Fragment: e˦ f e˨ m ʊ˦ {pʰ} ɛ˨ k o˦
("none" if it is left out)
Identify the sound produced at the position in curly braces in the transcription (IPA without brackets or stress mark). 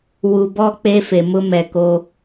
m